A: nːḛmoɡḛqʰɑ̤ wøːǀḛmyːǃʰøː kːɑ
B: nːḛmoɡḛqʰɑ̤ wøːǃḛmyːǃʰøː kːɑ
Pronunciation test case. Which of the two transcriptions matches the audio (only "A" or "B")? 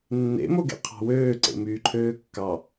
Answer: A